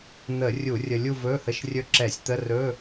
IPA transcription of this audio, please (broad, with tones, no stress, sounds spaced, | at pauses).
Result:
n̪ ə˧˩˧ rʲ u˧˩˧ rʲ ə˧ lʲ u˥˧ v ɵ˧˥˧ h ə˧˥˧ ʃ rʲ ɵ˥˧ ǁ ɛ˧˩˧ sʲ t̪ ə˧˥˧ r ɵ˧˥˧